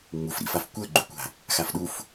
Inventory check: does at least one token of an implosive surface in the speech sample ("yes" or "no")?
yes